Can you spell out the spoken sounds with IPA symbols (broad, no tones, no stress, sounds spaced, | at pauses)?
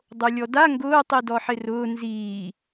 dˤ o lʲ ɔ d a ŋ ɡ ʊː tˤ i d ɔ ħ ɪ r ʊː n z iː